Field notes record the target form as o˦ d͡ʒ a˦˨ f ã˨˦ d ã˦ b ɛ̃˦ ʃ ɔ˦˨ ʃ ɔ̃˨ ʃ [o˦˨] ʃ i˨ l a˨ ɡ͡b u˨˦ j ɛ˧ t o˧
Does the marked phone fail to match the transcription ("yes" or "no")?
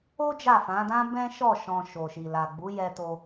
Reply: yes